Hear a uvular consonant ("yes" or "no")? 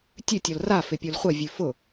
yes